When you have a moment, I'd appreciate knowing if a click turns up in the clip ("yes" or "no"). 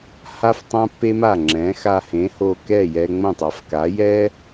yes